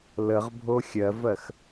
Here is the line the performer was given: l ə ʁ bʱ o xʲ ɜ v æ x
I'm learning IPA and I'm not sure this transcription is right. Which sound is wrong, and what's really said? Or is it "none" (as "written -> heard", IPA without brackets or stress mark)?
æ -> ɜ